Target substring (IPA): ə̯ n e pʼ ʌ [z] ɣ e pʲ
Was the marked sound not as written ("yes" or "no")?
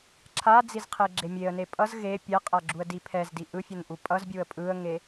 no